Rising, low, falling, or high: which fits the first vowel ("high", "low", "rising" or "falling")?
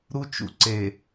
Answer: high